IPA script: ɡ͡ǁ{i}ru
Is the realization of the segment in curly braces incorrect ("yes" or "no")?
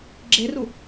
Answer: yes